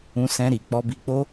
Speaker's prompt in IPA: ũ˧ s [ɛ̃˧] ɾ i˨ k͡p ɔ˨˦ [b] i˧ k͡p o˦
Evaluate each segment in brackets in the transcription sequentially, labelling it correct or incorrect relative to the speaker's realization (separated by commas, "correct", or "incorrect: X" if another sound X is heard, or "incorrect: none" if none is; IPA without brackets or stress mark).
correct, correct